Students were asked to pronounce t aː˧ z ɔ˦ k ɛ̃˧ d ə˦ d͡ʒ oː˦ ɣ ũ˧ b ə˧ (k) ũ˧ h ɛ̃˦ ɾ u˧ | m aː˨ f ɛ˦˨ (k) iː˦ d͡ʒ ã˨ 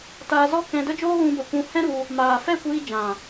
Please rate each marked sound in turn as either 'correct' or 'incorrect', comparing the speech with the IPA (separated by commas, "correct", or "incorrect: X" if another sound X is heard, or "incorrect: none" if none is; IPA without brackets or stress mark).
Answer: incorrect: kʷ, incorrect: kʷ